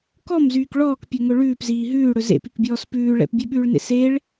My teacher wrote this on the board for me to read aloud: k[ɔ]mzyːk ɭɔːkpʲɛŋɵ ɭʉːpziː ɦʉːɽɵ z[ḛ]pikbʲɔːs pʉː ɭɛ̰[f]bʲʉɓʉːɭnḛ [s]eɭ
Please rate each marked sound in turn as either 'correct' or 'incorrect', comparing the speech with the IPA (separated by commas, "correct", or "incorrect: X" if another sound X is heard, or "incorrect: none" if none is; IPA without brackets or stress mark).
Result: correct, correct, incorrect: p, correct